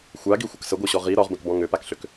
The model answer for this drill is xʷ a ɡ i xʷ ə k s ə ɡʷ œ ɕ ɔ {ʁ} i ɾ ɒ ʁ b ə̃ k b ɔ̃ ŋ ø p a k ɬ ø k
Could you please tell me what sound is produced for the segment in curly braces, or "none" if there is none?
ʁ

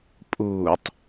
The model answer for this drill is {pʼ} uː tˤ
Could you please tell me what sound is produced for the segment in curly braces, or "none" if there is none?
pʼ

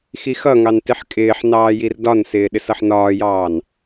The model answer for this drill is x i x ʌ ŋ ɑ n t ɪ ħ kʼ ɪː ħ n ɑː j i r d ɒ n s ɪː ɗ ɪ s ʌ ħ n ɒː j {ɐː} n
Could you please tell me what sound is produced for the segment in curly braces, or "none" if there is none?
ɑː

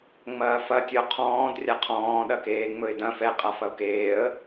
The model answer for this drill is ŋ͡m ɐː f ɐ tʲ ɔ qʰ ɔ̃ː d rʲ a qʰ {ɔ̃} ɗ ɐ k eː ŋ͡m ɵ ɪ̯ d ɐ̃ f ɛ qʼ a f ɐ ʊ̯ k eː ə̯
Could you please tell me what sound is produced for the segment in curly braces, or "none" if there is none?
ɔ̃ː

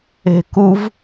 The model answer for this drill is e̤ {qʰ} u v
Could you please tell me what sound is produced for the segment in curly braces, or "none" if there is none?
k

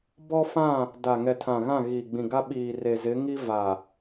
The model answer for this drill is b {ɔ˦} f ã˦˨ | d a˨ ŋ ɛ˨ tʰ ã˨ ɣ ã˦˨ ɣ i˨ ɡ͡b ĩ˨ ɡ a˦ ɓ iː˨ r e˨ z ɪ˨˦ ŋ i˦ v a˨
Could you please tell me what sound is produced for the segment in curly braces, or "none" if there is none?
ɔ˦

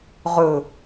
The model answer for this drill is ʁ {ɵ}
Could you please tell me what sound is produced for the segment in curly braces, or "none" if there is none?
ɵ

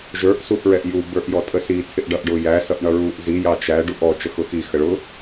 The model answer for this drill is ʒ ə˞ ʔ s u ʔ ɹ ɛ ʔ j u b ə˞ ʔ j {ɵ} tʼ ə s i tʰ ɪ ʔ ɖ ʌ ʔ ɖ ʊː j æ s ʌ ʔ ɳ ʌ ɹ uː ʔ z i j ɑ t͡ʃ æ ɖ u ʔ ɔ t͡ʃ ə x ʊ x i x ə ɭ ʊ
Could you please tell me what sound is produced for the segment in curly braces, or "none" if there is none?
ɔ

